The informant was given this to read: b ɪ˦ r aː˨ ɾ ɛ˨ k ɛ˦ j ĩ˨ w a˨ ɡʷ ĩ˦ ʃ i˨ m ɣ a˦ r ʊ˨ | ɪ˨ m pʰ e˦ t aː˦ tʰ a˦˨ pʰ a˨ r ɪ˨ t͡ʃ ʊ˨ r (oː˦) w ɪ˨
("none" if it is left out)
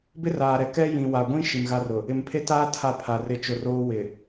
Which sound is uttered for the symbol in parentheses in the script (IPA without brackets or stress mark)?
oː˦